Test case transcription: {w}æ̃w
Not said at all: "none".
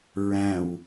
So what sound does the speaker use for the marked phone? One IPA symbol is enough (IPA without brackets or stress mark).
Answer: ɹ